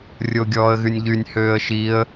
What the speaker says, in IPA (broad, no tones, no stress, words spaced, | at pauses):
rʲoɡʲɔːə̯ɣynʲʎynʲ høːə̯ʃiə̯